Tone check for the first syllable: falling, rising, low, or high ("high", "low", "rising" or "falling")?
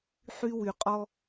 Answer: high